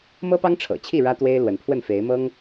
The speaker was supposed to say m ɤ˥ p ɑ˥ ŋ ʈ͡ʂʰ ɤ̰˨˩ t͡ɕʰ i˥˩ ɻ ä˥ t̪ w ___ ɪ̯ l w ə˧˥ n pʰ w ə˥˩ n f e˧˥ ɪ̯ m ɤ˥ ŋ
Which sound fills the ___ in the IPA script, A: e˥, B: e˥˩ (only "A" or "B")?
A